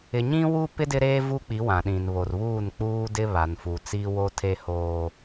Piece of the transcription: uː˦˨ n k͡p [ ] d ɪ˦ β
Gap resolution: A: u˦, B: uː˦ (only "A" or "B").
B